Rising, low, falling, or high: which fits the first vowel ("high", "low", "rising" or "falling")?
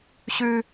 high